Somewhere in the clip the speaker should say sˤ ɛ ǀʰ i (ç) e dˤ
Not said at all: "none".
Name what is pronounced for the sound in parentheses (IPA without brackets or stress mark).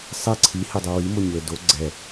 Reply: h